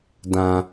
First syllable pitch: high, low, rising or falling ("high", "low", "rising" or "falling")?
low